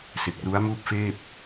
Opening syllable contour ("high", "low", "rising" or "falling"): low